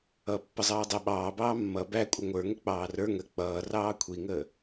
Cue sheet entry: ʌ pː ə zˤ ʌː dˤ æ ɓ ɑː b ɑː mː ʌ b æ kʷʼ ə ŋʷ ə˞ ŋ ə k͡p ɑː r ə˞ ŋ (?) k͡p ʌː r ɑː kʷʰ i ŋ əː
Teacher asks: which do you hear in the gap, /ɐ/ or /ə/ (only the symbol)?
ə